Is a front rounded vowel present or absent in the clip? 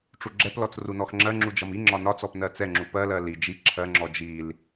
absent